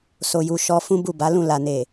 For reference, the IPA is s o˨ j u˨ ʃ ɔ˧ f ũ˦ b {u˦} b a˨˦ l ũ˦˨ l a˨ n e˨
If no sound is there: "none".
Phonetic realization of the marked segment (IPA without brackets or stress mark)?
u˦˨